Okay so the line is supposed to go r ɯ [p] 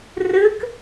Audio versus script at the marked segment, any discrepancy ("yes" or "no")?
yes